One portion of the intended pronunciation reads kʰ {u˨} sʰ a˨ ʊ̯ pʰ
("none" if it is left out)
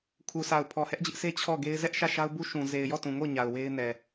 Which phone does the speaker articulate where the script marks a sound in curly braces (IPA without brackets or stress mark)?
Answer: u˨